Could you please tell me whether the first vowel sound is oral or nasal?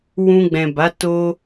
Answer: nasal